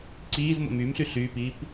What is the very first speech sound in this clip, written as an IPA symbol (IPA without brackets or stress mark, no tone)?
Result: ǀ